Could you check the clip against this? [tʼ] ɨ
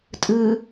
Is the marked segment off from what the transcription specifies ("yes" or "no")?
no